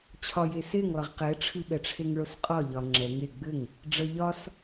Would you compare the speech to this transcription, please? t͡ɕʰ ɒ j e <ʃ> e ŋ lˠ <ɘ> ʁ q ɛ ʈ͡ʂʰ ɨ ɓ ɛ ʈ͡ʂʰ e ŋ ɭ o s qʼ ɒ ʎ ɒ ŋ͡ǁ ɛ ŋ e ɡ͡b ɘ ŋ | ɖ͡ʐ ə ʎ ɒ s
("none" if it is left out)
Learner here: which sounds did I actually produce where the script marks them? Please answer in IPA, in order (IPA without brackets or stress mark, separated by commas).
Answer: s, ɘ